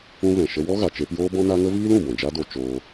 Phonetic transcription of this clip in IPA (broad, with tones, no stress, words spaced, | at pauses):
ũ˦vɛ̃˨ʃə˦ wɔ˦ɣa˨t͡ʃe˧p joː˦bɔ̃˦na˦ ŋə˦viː˦lũ˨ bɔ̃˨d͡ʒa˦do˧ t͡ʃoː˧